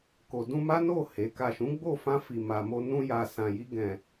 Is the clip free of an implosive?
yes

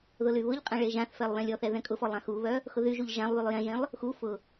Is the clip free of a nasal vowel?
no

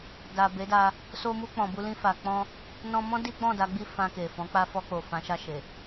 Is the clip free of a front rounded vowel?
yes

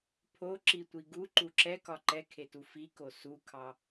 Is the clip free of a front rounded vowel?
yes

